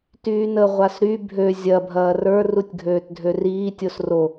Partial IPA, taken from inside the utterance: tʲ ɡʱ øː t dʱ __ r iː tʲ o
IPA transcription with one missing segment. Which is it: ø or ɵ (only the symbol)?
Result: ø